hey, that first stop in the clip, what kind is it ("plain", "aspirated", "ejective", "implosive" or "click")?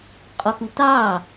ejective